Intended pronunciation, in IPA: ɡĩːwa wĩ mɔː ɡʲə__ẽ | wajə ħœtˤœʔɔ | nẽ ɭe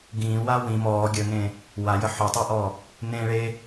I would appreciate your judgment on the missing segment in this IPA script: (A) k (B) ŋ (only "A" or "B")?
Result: B